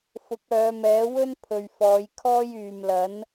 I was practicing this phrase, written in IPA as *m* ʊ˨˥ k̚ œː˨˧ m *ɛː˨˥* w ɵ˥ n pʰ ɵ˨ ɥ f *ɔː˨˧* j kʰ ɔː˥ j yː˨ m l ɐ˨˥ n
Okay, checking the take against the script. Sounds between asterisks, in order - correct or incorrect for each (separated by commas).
incorrect, correct, correct